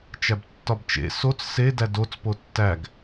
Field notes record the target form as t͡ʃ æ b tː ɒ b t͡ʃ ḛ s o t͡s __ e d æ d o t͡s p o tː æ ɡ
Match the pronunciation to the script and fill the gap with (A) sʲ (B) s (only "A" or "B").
B